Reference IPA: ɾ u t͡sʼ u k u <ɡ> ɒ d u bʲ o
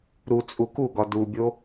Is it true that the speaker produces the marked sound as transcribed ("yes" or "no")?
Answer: yes